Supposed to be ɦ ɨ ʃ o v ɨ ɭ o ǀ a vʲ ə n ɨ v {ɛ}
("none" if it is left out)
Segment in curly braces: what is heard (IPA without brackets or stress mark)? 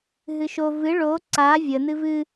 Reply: ɨ